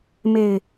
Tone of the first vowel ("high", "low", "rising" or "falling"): low